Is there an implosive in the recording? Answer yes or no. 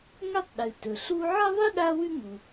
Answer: yes